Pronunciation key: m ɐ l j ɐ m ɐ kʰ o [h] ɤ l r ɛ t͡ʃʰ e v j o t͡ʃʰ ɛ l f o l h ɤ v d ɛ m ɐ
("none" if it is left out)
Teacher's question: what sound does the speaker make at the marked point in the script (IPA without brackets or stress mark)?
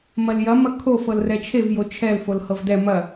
f